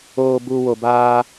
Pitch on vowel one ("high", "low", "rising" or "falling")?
low